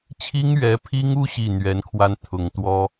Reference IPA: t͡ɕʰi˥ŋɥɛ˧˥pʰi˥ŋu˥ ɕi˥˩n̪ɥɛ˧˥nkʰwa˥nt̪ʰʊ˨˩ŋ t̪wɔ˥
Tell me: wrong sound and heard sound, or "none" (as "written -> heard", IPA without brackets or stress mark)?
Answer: none